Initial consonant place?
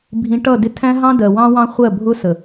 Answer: labial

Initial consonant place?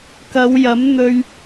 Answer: velar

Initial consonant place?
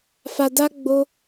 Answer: labial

